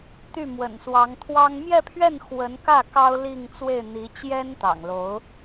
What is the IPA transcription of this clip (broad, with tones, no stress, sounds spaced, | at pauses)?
t̪ y˥˩ m w ə̰˨˩ n s w ɑ˧˥ ŋ t̪ʰ w ɑ˥ ŋ m j ɛ˥˧ pʰ ɥ ɛ˥˩ n x w ə˧˥ n k ä˥˩ k ɑ˥ ʊ̯ l i˥˧ ŋ t͡s w e˥˩ ɪ̯ n̪ i˧˥ t͡ɕ j ɛ˥ n t̪ ɑ̰˨˩ ŋ l o˧˥ ʊ̯